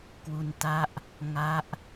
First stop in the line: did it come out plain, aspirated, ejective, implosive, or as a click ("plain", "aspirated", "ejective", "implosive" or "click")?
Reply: plain